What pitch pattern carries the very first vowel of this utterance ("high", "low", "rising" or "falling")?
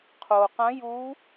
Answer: low